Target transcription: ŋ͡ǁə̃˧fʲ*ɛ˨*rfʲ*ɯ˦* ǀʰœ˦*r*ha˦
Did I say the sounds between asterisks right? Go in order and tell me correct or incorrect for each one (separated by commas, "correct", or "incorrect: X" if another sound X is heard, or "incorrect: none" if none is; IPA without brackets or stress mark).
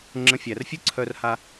incorrect: æ˨, correct, correct